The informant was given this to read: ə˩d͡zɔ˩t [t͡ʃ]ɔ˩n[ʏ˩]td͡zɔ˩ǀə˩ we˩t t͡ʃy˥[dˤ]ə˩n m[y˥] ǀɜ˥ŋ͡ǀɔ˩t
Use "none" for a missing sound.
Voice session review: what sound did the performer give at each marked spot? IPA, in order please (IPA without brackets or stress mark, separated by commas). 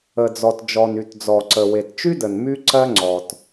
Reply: d͡ʒ, y˩, d, y˥